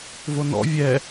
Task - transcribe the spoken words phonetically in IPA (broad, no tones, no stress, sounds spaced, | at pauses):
v o n ɔ̰ vʲ ɛ